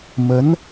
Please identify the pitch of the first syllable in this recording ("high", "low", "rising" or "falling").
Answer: rising